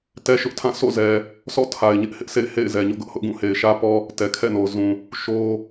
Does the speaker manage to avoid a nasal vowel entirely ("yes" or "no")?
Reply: no